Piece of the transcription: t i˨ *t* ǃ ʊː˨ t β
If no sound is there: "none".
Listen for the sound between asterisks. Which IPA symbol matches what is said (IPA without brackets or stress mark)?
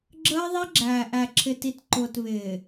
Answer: t